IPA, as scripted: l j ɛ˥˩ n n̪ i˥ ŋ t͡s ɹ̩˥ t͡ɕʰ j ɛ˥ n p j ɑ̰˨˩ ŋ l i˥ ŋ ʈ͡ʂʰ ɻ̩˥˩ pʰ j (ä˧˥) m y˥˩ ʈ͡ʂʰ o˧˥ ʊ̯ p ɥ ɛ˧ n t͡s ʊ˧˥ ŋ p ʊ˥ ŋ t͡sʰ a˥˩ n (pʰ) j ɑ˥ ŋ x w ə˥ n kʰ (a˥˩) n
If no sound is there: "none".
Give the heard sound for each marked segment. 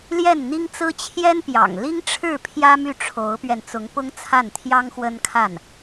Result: ä˥, t̪ʰ, a˥˩

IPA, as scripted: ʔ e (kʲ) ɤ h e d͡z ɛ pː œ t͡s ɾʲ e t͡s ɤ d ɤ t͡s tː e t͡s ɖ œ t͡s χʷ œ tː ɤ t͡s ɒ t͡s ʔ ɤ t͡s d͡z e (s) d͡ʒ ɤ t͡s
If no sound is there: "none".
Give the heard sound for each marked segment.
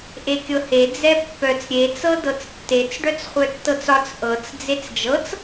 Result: kʲ, t͡s

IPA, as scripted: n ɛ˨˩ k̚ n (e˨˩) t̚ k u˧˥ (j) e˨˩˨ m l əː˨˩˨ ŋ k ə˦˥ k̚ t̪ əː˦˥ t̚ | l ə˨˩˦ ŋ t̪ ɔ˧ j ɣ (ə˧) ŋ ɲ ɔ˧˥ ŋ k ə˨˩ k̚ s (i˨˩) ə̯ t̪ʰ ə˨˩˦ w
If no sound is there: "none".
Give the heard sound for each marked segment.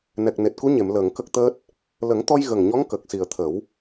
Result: e˨˩, ɲ, ə˨˩, i˨˩

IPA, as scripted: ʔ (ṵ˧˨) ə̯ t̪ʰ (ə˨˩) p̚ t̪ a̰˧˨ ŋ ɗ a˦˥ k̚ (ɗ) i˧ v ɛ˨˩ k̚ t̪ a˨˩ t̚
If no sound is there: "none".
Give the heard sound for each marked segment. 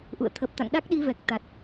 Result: ṵ˧˨, ə˨˩, ɗ

